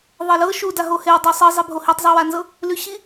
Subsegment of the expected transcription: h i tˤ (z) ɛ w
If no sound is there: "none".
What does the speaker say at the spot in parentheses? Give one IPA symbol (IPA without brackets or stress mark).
zˤ